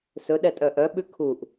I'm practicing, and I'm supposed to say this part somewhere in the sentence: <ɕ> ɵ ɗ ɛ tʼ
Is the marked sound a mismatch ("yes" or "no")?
yes